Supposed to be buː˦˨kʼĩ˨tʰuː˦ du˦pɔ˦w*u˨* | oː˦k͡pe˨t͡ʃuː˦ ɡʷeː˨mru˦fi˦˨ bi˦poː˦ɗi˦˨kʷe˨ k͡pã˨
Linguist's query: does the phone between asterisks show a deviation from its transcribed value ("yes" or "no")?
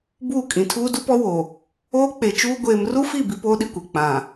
yes